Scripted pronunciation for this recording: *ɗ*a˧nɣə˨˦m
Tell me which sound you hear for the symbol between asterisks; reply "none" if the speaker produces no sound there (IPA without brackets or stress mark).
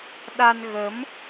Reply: ɗ